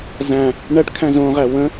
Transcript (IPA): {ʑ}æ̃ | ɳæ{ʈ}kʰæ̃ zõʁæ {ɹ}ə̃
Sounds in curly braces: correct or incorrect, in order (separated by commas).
incorrect, correct, incorrect